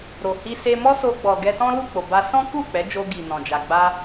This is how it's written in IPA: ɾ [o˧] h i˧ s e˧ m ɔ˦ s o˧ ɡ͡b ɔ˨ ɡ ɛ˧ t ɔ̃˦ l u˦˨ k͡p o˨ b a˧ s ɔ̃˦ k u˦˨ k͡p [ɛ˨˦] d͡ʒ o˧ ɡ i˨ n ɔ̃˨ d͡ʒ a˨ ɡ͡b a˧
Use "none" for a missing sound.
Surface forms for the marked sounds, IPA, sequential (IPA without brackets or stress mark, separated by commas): o˨, ɛ˨˦